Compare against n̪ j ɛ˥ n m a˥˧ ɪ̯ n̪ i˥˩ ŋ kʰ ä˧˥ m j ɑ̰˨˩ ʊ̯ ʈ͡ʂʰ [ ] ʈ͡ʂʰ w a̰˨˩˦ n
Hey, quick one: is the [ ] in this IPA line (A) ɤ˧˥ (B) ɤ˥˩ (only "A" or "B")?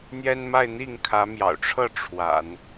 B